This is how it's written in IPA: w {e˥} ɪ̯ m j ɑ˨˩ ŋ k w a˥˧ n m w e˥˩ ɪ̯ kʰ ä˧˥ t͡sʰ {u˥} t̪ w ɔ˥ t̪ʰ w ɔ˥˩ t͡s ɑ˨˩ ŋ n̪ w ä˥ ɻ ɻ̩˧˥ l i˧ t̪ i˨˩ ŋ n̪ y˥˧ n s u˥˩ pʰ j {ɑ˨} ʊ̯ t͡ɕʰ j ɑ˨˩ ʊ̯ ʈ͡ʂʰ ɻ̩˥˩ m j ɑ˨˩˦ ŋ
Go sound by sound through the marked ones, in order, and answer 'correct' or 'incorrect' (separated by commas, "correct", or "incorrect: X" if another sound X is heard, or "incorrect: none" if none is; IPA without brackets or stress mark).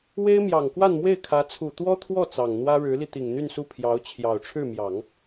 correct, incorrect: u˨˩, incorrect: ɑ˧˥